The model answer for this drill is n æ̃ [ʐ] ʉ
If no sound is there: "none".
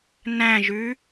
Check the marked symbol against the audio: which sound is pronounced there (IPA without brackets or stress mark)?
ʒ